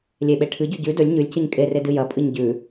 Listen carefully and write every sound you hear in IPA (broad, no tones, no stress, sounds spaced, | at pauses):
lʲ e ɓ e ʈʰ ɨ ɟ ʉ ɟ ʉ d ɵ lʲ ɲ ʉ lʲ c ɨ ɲ kʼ e r e d ɨ j ɐ pʼ ɨ ɲ ɟ ʉ